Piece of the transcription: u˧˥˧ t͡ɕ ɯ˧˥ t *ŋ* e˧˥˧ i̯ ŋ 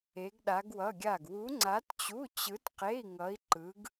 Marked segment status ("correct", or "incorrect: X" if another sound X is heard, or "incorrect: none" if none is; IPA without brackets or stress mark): incorrect: q